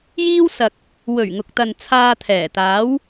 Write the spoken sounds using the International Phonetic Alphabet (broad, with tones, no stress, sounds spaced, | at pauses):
j iː˥ w s ɐ˨ k̚ | w ɵ˨˩ ɥ ŋ ʊ˨ k̚ t̪ ɐ˨ n t͡sʰ aː˧ t̪ʰ ɛː˨˩ t̪ aː˨˥ w